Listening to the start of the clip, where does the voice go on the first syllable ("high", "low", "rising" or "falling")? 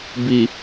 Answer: low